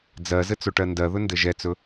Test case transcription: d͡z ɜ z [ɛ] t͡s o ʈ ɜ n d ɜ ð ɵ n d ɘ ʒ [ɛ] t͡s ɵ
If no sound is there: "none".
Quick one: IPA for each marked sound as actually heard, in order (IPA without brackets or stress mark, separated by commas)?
ɘ, ɛ